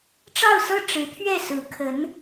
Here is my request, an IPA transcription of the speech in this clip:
ʈ͡ʂ ɑ˥˧ ʊ̯ s ɤ˥˩ ʈ͡ʂ ɻ̩˧˥ t̪ʰ ɥ ɛ˥˩ s ɹ̩˧˥ kʰ ə˧˥ n

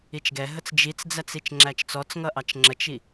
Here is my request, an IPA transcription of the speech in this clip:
i t͡ʃ ɡ ɛ ɦ ə t͡s d͡ʒ i t͡s d͡z æ t͡s i t͡ʃ ŋ͡ǁ æ t͡ʃ t͡s ɔ t͡s ŋ ʌ ʔ ɑ t͡ʃ ŋ͡ǁ ə t͡ʃ i

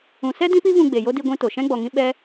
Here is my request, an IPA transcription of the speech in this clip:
ũ˨ s ɛ˦ d ĩ˦ p i˦ v ũ˧ ɡ͡b e˨ j o˦ d i˧ ɡʷ ĩ˧ t o˨ ʃ ɛ̃˦ ɡ͡b ɔ˨ ŋ ĩ˦ ɓ ɛ˦

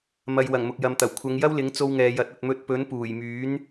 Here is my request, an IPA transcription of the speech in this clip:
m ɐ˧ j w ɐ˨˩ ŋ m ʊ˨ k̚ j ɐ˨ m t̪ ɐ˨˩ w kʷʰ ɐ˨˧ ŋ j ɐ˥ w l ɪ˨˥ ŋ t͡s o˧ w ŋ ɛː˨ j ɐ˨˥ t̚ ɐ˨ t̚ m ɵ˧ t̚ p ɵ˨˥ n p uː˨˩ j m yː˨˥ n

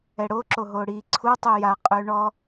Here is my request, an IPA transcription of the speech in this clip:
ɛ ɽ o ǁ o ɦ o ɽ i ǀʰ u tˤ y j a qʼ ø ɳ ɔ

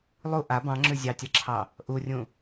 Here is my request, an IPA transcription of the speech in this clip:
lˠ u ʔ a b ɑ̃ ŋ͡ǁ ʉ zʲ ɑ tʲ a ǁʰ ɑ | ʔ u rʲ ũ

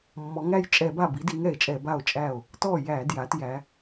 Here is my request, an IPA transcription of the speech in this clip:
mː ɔ˩˧ ŋ æ˥˩ j t͡ʃʼ ɛ˧˩˧ b a˥˩ b i˨˥ d i˨˥ ŋ ɛ˧˩˧ e̯ t͡ʃʼ ɛ˧˩˧ b a˥˩ o̯ t͡ʃʼ æ˥˩ o̯ | t ɔ˥˩ j æ˧˩˧ d j a˩˧ t j æ˩˧

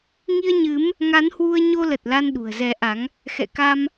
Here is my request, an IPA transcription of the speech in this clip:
ŋ i˧ ə̯ ɲ ɨ˨˦ m | ŋ a˨˦ n h w u˧ ə̯ ɲ o˧ l ə˨˩ t̚ l a˧ n ɗ ṳ˨˩ ə̯ z ɛ˨˦ ʔ a˨˦ ŋ | x ɛ̰˧˨ k a˧ m

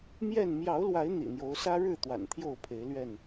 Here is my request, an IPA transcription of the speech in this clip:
m j ɛ˥˨ n m j ɑ˨˦ ʊ̯ l w a˨˦ ɪ̯ n̪ ḭ˨˩ n̪ j o˨˦ ʊ̯ s ä˦ ɻ ɻ̩˥˨ t̪ w a̰˨˩ n t̪ʰ j o˥˨ ʊ̯ pʰ e˨˦ ɪ̯ l ɥ ɛ˥˨ n

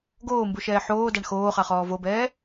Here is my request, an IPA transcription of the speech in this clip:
ɡ oː m b u ʃ ɛː ħ oː d a ɳ x oː χ a χ ɔː v o b ɛː

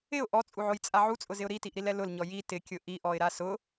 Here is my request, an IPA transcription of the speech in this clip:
ɪ ʊ̯ ʔ ɔ t͡sʼ u ʕ o j t͡sʼ a ʕ u t͡sʼ ʊ z ɪ ʊ̯ ɾ i t i ʔ ɾ i l ɛ l ʊ l ɲ ɔ j i t ɪ kʲ ʊ ʔ i ʔ ɔ ɪ̯ ɾ a s ʊ

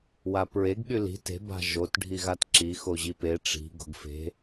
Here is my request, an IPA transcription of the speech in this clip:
w a p ɹ e ɡ ɠ y l i̤ t e̤ b a̤ ʒ o t ɖʱ i ɣ a t ǁ i x o ʑ i p e ʈ͡ʂ i̤ ɡ o̤ ɡ f e̤

